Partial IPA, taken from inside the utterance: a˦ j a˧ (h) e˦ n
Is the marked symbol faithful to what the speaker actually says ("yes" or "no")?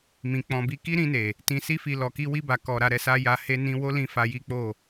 yes